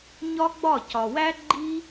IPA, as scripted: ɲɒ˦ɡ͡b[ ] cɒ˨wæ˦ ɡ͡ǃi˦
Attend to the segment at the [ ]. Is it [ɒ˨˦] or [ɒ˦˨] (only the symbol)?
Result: ɒ˦˨